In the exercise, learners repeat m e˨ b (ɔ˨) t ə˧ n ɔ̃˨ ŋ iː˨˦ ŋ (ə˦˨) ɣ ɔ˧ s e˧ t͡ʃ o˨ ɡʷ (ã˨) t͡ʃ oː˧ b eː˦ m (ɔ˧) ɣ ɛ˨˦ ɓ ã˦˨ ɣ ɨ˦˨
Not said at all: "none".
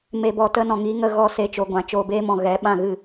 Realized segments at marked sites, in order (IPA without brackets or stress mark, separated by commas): ɔ˨, ə˦˨, ã˨, ɔ̃˧